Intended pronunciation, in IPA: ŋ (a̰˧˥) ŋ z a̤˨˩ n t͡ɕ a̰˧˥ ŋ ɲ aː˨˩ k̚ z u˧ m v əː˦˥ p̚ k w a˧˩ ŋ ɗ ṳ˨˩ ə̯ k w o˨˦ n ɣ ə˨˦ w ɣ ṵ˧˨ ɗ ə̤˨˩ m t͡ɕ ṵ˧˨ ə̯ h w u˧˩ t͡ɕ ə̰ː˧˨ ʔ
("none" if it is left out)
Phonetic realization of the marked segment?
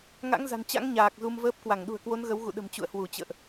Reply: a̰˧˥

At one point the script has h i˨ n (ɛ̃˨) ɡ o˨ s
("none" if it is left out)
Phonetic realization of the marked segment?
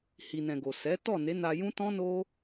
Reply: ɛ̃˨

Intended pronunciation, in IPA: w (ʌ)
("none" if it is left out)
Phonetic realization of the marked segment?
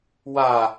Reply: a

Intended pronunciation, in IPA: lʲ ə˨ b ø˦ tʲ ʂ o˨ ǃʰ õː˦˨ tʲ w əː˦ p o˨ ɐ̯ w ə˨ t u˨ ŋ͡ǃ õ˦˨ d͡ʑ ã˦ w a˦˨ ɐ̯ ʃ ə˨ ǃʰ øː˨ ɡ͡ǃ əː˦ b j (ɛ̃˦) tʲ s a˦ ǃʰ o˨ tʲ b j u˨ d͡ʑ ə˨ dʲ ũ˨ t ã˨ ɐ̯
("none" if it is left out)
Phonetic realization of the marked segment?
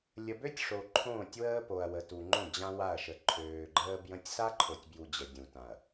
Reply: ə̃˦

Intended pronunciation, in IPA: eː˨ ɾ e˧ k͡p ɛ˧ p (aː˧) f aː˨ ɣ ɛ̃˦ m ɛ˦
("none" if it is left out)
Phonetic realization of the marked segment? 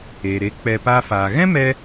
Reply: aː˧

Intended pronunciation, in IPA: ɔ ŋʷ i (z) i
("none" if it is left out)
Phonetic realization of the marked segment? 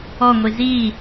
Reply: z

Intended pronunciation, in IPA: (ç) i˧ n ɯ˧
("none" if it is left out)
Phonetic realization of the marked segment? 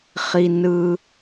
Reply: χ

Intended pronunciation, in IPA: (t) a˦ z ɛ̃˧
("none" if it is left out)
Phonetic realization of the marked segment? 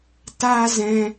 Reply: t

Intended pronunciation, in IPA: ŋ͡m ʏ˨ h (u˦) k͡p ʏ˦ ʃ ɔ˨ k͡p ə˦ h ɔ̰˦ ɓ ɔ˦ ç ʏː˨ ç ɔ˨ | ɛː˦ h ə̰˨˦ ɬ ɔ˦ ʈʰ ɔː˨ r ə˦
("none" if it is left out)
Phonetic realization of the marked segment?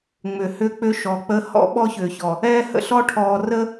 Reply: ʏ˦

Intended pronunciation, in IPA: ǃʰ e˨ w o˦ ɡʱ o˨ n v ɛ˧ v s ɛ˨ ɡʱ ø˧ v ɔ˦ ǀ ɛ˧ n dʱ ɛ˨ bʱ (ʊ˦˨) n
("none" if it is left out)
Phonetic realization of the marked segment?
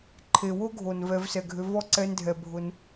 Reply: ʊ˧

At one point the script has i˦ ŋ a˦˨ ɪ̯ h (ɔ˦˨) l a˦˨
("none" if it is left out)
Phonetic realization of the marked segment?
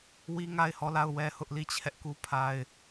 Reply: ɔ˦˨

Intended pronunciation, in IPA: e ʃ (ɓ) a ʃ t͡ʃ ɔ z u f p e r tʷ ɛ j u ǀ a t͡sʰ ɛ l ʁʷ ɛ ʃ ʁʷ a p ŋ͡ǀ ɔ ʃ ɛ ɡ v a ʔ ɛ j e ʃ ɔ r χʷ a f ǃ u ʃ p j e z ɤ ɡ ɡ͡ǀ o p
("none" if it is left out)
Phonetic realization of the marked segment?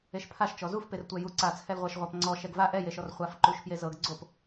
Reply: pʰ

